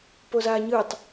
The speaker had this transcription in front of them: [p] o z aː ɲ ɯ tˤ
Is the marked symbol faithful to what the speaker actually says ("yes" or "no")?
yes